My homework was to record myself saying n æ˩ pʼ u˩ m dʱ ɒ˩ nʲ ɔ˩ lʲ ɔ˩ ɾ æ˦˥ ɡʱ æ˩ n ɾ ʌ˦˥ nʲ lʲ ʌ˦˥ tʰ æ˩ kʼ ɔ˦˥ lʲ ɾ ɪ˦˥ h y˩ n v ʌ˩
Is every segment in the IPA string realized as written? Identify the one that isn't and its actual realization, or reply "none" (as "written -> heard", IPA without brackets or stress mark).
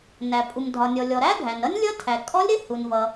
y˩ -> u˩